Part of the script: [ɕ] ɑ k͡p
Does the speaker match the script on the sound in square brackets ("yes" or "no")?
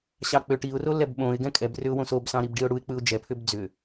yes